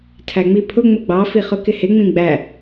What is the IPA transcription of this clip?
tʰæŋ͡mipʰʊ ŋ͡mʊɡ͡bɑ fiχʊkɪhɪ ŋ͡mĩɡ͡bæ

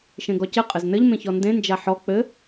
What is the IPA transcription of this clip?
ʃẽɡɔcɘ qʼɘznɘʎ mẽçɔndẽ nd͡ʒaħɔ k͡pɘ

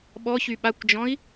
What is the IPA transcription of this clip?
ɓɔçy ɓakʷd͡ʒɔ̃i̯

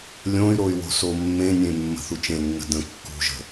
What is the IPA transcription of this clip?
lʲõy̯ɾoy̯ wo̤somːẽnʲẽ mːə̤θut͡ʃẽnːə̤ də̃ kːṳʒə̤

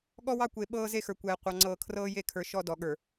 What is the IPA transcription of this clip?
ɠɔ˦wɑ˦ kʷe˨ ɓɤː˦ze˦xə˞˨kʷɛː˨ qʷɑ˨ŋ͡ǀɤː˨ kʰrɤː˦je˦˨kʰə˞˨ ʃɔ˦dɔ˨ɠə˞˨

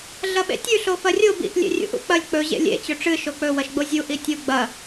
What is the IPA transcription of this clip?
ɮɐɓḛtʲʉ ɬofɐrʲo bḭʔ lʲḛrʲṵʔṵk͡pɐlʲ k͡pɵ ʑḛlʲḛ t͡ɕɵʈ͡ʂɨ ʃok͡pɵ wɐʃɡ͡bozʲu ʔitʲu ɡ͡bɐ

